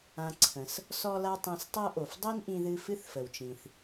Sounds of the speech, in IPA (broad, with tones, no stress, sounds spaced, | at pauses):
ã˧ ǀʰ ə̃˩ s | s ɔ˥ l a˥ tˤ ĩ˧ s tˤ ɤ˥ ʔ o˩ f dˤ i˥ n ʔ ĩ˧ ð ɨ˧ f ɨ˥ θ f ə˩ w t͡ʃ ĩ˩ θ